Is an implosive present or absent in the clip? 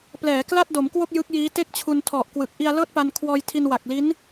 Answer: absent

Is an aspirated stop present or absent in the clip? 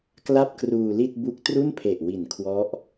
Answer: present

